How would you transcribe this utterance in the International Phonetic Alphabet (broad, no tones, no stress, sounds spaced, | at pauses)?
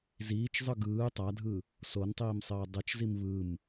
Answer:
z iː t͡ʃ zˤ ɯ ɡ ɯː tˤ a dʱ ɯ | s o n tˤ iː m sˤ ɘː dˤ ɘ t͡ʃ z i m β ɯ m